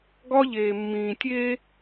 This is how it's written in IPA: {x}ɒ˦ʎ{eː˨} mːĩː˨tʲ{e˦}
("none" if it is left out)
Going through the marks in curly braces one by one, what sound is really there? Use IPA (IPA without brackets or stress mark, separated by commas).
ɡ, eː˨, e˦